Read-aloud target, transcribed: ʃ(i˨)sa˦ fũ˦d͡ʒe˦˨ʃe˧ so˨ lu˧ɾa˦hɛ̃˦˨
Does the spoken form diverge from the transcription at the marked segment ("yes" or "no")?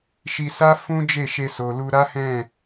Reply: yes